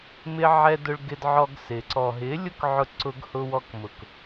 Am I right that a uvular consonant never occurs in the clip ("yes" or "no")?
yes